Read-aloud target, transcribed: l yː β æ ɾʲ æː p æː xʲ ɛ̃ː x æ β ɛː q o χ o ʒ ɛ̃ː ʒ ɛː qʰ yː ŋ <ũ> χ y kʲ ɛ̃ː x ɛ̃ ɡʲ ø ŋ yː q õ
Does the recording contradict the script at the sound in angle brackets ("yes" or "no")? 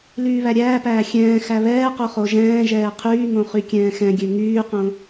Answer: yes